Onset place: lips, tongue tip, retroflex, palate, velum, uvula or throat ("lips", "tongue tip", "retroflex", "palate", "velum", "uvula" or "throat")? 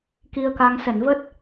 velum